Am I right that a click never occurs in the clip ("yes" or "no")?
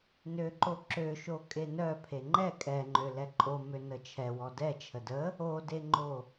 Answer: no